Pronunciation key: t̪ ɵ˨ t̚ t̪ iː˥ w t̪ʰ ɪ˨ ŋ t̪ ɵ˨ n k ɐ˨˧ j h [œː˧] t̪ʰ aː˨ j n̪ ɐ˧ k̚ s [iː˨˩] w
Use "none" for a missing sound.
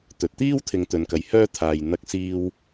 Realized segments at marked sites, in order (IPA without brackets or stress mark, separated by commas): œː˥, iː˧